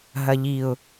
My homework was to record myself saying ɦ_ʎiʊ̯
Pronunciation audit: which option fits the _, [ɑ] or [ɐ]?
ɐ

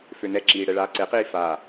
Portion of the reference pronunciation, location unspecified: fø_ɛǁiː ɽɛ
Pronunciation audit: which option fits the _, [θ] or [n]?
n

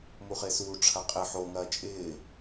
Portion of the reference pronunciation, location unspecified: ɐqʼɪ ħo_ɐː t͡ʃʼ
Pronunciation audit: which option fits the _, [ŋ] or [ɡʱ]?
ŋ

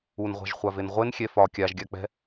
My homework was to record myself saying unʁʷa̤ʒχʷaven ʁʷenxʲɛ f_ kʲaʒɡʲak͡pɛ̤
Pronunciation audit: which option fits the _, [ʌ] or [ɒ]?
ɒ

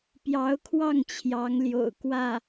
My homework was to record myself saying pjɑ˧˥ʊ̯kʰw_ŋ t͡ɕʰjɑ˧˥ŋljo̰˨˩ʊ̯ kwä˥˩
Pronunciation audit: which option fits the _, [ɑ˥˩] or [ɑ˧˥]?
ɑ˥˩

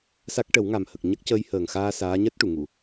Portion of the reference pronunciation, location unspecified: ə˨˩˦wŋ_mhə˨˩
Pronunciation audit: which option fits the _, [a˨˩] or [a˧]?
a˨˩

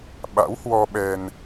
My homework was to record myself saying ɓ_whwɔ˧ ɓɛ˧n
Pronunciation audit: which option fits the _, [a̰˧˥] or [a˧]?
a̰˧˥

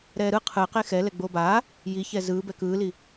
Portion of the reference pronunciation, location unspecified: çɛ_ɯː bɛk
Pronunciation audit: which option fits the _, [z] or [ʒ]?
z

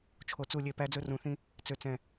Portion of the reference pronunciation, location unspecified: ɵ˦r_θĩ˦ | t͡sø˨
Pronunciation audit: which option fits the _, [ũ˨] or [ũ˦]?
ũ˨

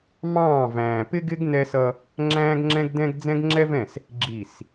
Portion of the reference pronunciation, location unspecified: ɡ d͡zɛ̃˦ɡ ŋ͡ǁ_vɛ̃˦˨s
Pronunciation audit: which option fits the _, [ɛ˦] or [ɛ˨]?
ɛ˦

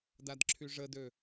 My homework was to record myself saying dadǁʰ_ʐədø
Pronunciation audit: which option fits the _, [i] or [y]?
y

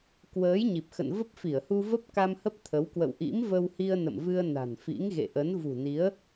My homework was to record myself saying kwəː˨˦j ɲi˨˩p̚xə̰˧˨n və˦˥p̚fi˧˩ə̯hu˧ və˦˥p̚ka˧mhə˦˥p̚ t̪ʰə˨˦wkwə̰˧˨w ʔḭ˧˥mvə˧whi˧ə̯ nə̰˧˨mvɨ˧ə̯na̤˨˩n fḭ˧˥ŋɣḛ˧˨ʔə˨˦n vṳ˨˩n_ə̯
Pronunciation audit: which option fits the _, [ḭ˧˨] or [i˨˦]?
i˨˦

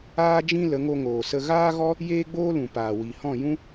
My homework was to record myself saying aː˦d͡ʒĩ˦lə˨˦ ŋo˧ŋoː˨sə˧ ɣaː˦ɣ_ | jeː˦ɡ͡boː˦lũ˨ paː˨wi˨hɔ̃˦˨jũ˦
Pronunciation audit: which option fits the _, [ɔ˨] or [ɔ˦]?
ɔ˦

